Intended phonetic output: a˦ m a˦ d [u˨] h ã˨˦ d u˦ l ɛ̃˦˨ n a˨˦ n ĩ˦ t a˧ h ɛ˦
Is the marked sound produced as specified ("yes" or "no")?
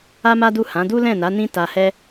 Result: no